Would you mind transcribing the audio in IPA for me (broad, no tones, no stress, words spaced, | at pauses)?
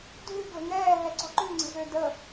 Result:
dʱʉ ɡlə̤ŋɛː ɦɛǀɔ̤ǃʉ ŋ͡ǀə̤zødə